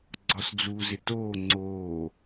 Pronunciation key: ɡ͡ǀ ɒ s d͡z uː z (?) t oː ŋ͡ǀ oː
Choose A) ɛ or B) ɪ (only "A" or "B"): B